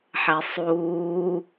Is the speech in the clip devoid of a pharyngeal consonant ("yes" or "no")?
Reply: no